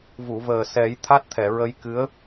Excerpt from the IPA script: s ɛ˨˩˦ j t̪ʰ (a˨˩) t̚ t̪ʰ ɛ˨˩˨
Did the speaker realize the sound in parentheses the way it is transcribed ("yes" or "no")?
no